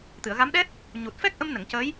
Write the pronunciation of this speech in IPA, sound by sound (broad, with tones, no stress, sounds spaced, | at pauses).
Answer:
t̪ ɨ˨˩˨ ə̯ ɣ a˧˥ m ɗ ɛ˦˥ t̚ | ɲ u˨˩ t̚ f ɛ˦˥ k̚ ʔ ə˧ m n ə˨˩˨ ŋ c ə˧˥ j